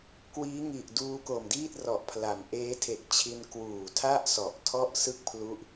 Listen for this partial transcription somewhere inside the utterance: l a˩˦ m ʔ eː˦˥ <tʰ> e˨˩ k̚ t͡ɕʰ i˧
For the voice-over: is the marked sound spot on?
yes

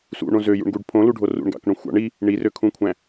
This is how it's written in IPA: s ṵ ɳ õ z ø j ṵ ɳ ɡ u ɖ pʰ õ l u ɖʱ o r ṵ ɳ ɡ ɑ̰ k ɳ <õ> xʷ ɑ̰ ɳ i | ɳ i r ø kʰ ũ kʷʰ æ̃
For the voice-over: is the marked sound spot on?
yes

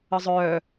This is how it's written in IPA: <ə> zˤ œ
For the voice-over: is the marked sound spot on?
yes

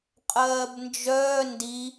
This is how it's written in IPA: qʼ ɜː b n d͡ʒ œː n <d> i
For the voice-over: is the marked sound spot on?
yes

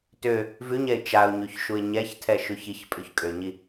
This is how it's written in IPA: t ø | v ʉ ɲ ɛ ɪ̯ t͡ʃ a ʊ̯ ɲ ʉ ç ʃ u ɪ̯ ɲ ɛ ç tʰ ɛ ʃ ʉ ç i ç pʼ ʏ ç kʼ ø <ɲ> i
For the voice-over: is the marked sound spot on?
yes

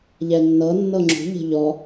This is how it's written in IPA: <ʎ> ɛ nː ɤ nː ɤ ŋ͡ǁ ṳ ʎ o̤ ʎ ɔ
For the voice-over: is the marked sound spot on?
yes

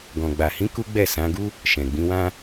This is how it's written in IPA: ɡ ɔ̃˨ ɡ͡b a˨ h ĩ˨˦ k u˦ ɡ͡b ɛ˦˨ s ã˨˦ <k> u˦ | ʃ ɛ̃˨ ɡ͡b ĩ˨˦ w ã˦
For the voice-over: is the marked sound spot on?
no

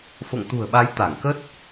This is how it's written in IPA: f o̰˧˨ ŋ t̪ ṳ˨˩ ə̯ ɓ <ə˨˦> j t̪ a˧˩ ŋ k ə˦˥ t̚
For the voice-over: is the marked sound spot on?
no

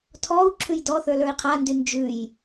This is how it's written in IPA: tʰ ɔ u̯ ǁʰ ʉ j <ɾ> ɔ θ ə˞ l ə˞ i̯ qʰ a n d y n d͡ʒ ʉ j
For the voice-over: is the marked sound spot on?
no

